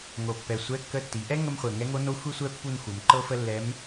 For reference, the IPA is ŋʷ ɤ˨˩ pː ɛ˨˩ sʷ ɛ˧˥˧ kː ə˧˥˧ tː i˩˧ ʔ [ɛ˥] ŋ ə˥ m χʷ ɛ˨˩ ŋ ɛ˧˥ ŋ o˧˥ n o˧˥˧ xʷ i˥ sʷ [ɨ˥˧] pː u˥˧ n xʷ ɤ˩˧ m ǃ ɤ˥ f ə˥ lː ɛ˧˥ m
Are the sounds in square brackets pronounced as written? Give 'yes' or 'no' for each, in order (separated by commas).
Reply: yes, no